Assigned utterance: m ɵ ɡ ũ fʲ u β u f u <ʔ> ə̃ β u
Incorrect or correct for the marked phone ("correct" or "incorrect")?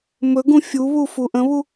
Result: correct